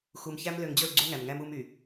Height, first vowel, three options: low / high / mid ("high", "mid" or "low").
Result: high